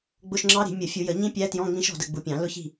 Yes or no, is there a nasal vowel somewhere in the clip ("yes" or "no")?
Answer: yes